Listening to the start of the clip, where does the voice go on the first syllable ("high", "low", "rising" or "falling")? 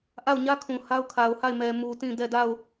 falling